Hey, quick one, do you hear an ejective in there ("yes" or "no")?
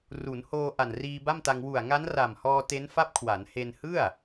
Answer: no